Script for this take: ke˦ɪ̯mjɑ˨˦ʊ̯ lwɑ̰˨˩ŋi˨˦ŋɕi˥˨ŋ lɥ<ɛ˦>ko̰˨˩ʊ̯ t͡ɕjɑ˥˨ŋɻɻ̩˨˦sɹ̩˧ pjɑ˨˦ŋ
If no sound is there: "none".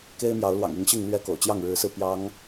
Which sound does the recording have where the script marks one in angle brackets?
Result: ɛ˦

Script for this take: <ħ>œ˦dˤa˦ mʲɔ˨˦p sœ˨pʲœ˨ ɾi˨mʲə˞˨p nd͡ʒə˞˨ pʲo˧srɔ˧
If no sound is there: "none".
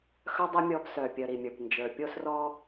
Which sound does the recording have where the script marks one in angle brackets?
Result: x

